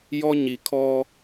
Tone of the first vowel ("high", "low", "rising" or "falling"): high